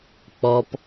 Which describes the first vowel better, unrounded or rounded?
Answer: rounded